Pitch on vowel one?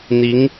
rising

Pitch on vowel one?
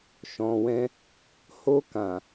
low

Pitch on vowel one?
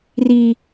high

